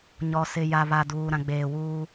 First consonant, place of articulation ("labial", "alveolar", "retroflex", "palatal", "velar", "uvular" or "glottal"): palatal